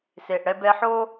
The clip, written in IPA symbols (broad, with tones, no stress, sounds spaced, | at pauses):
s e˨ ʔ ɽ ɛ˧ b ɛ˧ ħ o˦